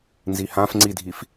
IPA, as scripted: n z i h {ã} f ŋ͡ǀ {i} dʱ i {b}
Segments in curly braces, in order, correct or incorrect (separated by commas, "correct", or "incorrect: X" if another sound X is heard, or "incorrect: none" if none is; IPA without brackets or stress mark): correct, correct, incorrect: f